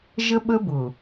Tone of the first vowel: high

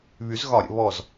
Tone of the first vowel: rising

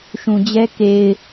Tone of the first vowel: low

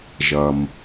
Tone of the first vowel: low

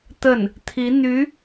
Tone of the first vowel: falling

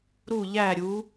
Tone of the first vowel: falling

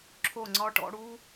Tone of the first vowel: falling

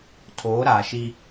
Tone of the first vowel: rising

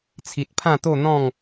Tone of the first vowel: low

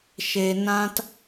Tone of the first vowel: low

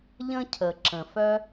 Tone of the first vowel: high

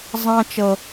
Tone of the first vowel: high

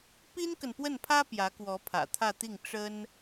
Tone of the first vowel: high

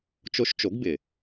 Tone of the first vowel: rising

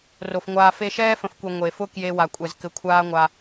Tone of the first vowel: low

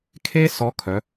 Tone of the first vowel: high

